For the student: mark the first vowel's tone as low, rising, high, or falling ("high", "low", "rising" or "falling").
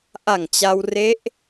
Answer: low